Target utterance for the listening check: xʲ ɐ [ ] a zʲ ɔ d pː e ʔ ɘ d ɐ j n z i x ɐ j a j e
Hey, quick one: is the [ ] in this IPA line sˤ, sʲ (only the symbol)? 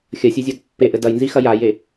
sʲ